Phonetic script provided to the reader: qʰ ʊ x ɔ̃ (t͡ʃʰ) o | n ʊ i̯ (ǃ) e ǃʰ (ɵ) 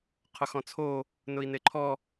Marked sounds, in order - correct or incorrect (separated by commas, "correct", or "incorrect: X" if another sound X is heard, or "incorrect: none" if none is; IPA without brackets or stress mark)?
incorrect: t͡sʰ, incorrect: n, incorrect: ɔ